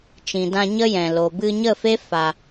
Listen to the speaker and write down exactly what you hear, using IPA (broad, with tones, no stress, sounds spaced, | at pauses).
t͡ʃ ĩ˨ d ã˧ ɲ ə˦ j ɛ̃˨ l o˨ b ɨ˧ ɲ ə˦˨ f e˦ f a˧